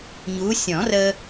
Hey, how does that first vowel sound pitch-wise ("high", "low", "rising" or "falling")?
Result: rising